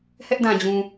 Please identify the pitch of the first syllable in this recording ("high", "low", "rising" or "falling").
high